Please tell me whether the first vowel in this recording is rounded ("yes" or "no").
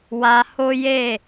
no